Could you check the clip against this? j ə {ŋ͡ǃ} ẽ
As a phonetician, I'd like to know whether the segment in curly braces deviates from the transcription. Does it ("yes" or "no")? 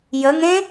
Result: yes